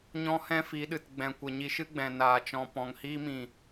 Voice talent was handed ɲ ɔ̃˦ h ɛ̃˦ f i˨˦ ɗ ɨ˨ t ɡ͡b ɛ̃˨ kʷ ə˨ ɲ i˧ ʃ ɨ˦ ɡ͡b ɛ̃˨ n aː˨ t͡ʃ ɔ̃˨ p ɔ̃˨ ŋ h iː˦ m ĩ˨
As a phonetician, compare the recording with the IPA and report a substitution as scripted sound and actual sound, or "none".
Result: none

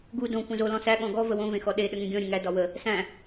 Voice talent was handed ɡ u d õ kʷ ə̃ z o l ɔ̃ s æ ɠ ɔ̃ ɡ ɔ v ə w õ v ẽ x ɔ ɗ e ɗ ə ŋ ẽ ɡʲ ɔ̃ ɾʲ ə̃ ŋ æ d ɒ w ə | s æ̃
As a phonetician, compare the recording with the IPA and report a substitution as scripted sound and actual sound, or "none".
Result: none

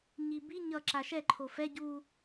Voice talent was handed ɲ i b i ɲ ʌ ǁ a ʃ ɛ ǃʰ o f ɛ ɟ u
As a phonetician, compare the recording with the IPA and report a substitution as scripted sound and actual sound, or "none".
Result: none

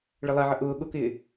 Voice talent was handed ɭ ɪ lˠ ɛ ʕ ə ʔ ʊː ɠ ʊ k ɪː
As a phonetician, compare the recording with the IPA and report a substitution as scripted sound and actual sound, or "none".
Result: none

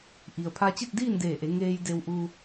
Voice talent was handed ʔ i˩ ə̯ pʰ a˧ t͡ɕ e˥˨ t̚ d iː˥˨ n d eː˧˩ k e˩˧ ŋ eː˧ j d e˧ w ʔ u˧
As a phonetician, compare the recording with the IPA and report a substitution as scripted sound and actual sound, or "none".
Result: k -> ʔ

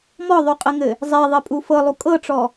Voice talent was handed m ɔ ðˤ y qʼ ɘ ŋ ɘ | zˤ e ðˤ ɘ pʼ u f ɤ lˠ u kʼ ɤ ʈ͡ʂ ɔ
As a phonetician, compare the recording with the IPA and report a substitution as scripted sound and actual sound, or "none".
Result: none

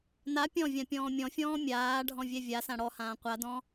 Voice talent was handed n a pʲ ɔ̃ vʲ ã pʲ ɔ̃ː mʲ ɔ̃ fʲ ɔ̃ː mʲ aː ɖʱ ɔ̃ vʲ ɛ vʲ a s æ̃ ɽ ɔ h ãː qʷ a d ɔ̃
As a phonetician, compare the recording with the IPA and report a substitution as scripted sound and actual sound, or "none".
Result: æ̃ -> ã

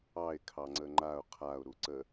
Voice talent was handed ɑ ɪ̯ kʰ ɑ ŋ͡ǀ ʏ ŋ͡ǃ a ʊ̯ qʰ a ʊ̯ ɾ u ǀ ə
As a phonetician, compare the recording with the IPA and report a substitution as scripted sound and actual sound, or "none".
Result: ʏ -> ə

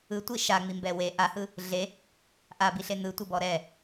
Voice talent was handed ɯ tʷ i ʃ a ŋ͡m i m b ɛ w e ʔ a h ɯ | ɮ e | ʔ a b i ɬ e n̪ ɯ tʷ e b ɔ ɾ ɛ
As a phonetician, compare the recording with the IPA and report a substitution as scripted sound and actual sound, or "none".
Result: none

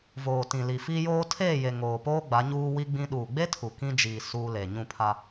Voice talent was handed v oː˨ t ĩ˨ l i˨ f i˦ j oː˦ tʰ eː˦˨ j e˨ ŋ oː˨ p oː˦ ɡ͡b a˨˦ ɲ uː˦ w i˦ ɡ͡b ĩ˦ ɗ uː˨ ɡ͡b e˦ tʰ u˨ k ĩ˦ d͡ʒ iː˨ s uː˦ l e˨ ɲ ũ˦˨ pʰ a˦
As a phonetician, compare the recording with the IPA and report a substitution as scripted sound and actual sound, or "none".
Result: none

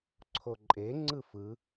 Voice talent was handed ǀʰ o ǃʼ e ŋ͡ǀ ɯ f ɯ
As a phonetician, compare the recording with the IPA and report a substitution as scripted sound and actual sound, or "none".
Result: none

